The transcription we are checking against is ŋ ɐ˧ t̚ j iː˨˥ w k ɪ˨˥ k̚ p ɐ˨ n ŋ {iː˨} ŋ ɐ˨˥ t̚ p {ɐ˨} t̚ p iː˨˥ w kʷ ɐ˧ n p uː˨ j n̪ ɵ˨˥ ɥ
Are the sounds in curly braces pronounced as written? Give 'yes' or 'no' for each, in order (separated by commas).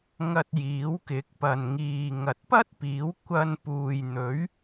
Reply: yes, no